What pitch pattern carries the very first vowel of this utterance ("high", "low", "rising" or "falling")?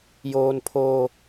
high